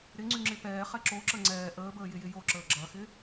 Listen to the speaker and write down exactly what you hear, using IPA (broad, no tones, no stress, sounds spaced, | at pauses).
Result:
ɾ ɪ ŋ͡ǀ y ŋ͡ǁ ɪ p ɛː χ ɛ ǁ o ǁ ə ŋ͡ǀ ɛː ʔ əː b əː j ɪ j ɪ j o ǁ əː ɡ͡ǁ ɐ x ɪ